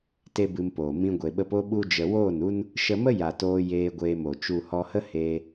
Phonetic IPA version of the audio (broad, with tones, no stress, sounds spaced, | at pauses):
t e˦ b ɨ˧ m p oː˨ m ĩ˧ ɡʷ e˨ ɓ ə˧ p o˦ ɓ u˦ d͡ʒ ə˧ w oː˦˨ n u˦ n | ʃ ə˧ m ə˦ j a˨ t oː˧ j eː˧ ɡʷ eː˧ m o˨ t͡ʃ u˨ h ɔ˧ h ə˦ h eː˧